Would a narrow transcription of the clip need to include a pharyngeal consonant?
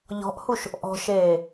no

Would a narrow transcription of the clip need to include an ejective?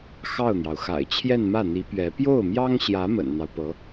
no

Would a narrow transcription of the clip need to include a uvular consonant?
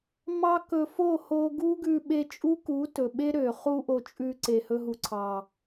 yes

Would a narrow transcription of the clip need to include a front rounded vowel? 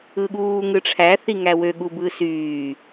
yes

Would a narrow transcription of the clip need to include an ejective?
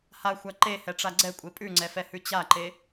yes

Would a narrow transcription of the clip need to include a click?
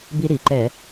yes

